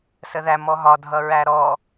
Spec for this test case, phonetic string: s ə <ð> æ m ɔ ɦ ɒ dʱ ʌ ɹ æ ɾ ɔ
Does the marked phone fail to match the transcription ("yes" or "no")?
no